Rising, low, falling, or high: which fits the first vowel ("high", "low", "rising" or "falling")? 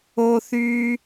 high